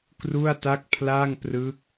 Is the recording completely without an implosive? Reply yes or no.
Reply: yes